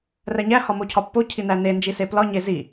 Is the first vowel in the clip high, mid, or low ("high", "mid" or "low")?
low